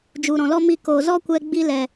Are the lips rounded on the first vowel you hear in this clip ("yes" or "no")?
yes